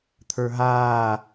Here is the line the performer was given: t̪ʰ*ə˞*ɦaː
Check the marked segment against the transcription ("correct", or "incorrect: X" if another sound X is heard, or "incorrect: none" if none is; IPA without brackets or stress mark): correct